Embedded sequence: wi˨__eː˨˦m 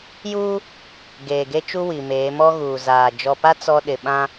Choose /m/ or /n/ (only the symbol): m